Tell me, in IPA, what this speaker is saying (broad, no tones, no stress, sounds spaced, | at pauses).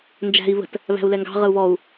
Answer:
n d͡ʒ æ̤ i̯ β ə̤ t | β æ̤ u̯ l ɛ ŋ ɡ ɑ̤ ʁ ə u̯ β ɔ u̯